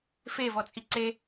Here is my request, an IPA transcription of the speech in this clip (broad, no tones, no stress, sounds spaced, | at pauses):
f e v ɔ t͡sʼ i ǀ e